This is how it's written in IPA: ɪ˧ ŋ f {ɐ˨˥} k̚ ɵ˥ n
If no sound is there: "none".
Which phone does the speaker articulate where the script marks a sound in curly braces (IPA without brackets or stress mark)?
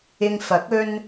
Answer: ɐ˨˥